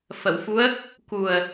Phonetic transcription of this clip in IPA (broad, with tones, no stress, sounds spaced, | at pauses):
f ə˨˩˨ w f u˧˥ ə̯ | k u˨˩ ə̯